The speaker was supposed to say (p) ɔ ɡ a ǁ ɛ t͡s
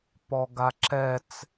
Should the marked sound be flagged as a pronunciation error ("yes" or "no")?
no